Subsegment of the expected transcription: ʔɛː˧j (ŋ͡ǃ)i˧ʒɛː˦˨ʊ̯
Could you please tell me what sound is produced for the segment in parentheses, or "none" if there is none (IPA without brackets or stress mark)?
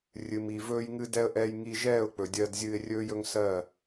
ŋ